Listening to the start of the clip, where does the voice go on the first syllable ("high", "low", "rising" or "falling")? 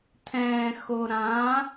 low